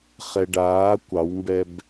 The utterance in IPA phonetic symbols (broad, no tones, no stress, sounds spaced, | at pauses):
χ ɛ ɖ aː kʷ ɑ w m b ɛ b